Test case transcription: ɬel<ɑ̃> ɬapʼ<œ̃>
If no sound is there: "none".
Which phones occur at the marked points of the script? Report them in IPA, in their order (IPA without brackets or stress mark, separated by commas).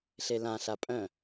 ã, œ̃